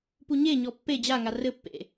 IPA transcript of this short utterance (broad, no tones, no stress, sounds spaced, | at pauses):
p u ɲ e ɲ ɔ pː e d͡ʑ a ŋ a r ɘ pː ḛ